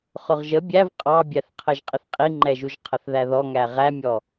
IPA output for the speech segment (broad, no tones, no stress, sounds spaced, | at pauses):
χ ʊ ʁ ʒ ə bʲ æ v qʼ ɑ bʲ æ θ qʰ ə ʒ qʼ ɪ θ qʼ i ŋ͡ǃ ɛ ʒ u ʒ qʰ ə θ ð æ ð ɔ ŋ æ ʁ æ mʲ ɔ